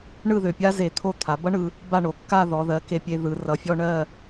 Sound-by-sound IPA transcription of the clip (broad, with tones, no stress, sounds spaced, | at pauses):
ɳ ɯ˥˧ ð ø˧˩ pʲ a˥ z e˧˩ t̪ʰ o˥˧ t̪ʰ a˩˧ b ʌ˥ ɳ ɯ˧ | b a˥˧ ɳ o˩˧ kː a˥˧ ð ɔ˩˧ ð ɜ˩˧ k e˧ pʲ e˧ ð ɯ˩˧ r ʌ˩˧ fʲ ɔ˧ ɳ ɜ˥˧